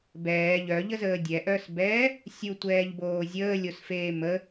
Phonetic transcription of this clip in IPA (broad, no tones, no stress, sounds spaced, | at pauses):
b ɛː ʎ œ ʎ ə z əː dʲ ɛ ʔ œ s b ɛː | sʲ u tʷ ɛː ʎ b oː zʲ əː lʲ o s f eː m ə